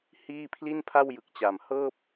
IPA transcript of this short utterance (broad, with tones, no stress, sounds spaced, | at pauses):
h iː˥˩ pʰ l i˥˩ n pʰ a˥˩ w j ɯ˨˩ k̚ t͡ɕ a˨˩ m h ɤː˥˩ p̚